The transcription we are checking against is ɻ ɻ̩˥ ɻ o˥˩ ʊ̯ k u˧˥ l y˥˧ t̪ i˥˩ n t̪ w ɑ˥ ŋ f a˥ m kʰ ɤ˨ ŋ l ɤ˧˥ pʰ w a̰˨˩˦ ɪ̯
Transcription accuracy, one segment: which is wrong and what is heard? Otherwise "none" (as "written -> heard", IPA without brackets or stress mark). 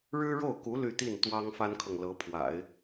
m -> n